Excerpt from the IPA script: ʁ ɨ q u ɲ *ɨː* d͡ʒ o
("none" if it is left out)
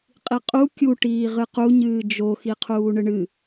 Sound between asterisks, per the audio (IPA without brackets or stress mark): ɨː